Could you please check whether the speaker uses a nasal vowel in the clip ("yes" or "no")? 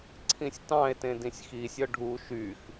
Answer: yes